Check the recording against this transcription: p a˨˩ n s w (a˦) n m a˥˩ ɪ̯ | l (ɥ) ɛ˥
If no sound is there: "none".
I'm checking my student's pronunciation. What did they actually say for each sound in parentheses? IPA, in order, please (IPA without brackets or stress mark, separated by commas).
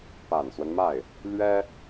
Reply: ə˦, ɥ